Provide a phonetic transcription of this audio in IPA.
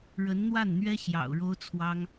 ɻ ə˧˥ n n̪ w a˥˩ n n̪ ɥ ɛ˥ ɕ j ɑ̰˨˩ ʊ̯ ɻ o˥ ʊ̯ t͡sʰ w ɑ˥ ŋ

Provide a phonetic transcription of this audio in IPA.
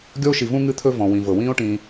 ɡʲ ɔ˥ o̯ ʃ i˨ v ũ˥ ŋ ɨ˦ t̪ʰ ɵ˦ v ɔ̃˩ w ĩ˩ v ɤ˩ w ĩː˥ o̯ ʈ ĩː˨

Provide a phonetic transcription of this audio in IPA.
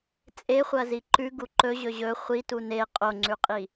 t͡sʼ e χʷ ɐ z i ǃ ʉ ɡ u ǃ ɵ ʑ ɵ ʑ ɵ χʷ i t u n e qʼ o ŋ͡ǀ ʉ qʼ i

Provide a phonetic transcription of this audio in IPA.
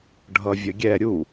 ɖʱ ʌ vʲ ə ɡʲ ɛ ɾʲ u

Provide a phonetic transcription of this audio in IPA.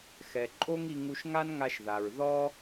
x ɛ˨ ǃʼ o˦ ŋ i˧ ŋ u˧ ʃ ŋ a˦ n ŋ a˧ ʃ ð a˨ ɹ ð ɔ˦

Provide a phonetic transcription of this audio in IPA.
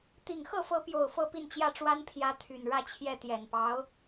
t̪ i˨˩ ŋ x ɤ˥˩ f ɤ˧˥ p j o˨˩ ʊ̯ f ɤ˥˧ p i˥˧ n t͡ɕ j ä˥˩ ʈ͡ʂ w a˥ n pʰ j ä˧˥ t̪ʰ y˨˩ n ɻ ä˥˧ t͡ɕʰ j ɛ˥˩ t̪ j ɛ˨˩ n p ɑ˧˥ ʊ̯

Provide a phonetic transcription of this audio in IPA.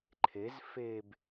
ǃʰ e z f e b

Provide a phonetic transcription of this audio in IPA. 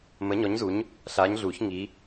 m ə˨˦ ɲ ɔ˨˦ ɲ z u˨˦ ɲ | ɬ aː˨˦ ɲ ɮ uː˨˩˦ ç ŋ i˨˦

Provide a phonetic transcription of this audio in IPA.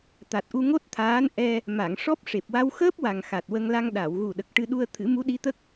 t̪ a˨˩ t̚ ʔ u˧ ŋ o˦˥ t̚ t̪ʰ aː˧˥ n ʔ ɛ˧ | m a˨˩˨ ŋ ʂ ɔ˦˥ p̚ ʂ e˨˩ p̚ w a˧ w x əː˦˥ p̚ w a˨˩ ŋ x a˨˩ t̚ w ə˧ ŋ l a˧ ŋ ɗ a˨˩˨ w ɣ u˨˩ ɗ ə˨˩ k̚ ʈ ɨ˧ ɗ u˧ ə̯ t̪ʰ ɨ˨˩˦ m u˧˥ ɗ i˧˥ t̪ ə˦˥ k̚

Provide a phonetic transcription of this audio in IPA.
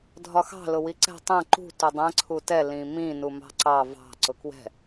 dʱ ɒ x ɑ̤ l ʊ w i ǀ ɛ̤ tˤ ɛ̃ ǃ ṳ t u dˤ ɛ̃ ǀʰ u t ɛ l ĩ m ĩ n u m ɑ̤ ǀ ɑ v ɑ̤ ǀ ʊ k w ɛ̤

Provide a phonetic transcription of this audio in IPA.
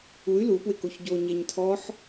u y̯ l u p w ɪ k o ç ɟ o ɲ ɛ ɲ tʰ ɔ ħ

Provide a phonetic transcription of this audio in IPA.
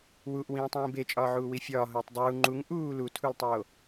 w u ʔ w ĩː tˤ ĩː b e t͡ʃʼ ɒː ʕ uː w i fʲ ɒː ɦ oː tˤ dˤ uː ŋ͡ǃ u ŋ ʔ uː l u tʰ u l tˤ oː

